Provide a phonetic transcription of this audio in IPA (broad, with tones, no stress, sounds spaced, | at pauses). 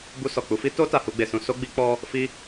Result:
b u˧ s ɔ˨ k͡p u˧ f i˦ t o˦ t a˧ h u˦ ɡ͡b e˧ s ũ˦ s o˦ ɡ͡b i˦ k͡p ɔ˦ | f i˦